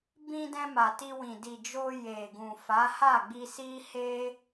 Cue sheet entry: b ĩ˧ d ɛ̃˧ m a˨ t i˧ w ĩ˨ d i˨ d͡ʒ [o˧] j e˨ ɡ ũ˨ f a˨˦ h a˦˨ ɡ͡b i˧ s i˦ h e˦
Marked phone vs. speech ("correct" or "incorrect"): correct